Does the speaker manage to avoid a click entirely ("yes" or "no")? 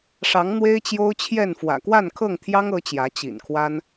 yes